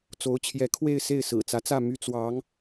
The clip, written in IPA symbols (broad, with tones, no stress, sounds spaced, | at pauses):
t͡s o˧˥ ʊ̯ t͡ɕʰ j ɛ˧˥ kʰ w e˥˧ ɪ̯ s e˥˩ ɪ̯ s ɹ̩˨˩ t͡s ä˧˥ t͡s ä˥˩ m y˥ t͡s w ɑ˧˥ ŋ